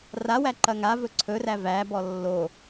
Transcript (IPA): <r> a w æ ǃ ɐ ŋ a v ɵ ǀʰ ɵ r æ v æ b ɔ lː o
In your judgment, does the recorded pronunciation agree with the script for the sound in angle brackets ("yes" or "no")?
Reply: yes